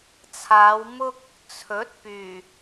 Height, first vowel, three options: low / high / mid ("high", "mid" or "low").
low